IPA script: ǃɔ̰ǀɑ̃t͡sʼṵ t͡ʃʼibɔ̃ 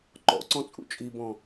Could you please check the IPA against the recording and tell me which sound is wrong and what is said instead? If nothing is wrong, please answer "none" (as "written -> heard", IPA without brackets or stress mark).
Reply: ɑ̃ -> ɔ̃